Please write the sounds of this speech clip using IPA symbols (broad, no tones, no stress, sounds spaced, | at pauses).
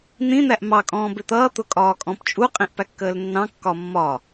n̪ ĩ n̪ æ ʔ m ɑ kʼ ɔ̃ː b ɪ t̪ ʌː t̪ ʊ kʼ ɒː kʼ ɔ̃ p t͡ʃʼ u qʼ ĩ ʔ p æ kː əː l nː ɑ̃ kː ɒ mː ɒ